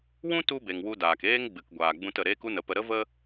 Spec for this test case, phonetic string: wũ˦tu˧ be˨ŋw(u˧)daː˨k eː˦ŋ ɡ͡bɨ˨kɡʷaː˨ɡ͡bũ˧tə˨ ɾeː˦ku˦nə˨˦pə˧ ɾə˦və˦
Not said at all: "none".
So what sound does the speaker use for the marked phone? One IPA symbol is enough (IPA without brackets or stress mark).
u˧